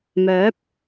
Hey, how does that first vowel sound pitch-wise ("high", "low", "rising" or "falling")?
rising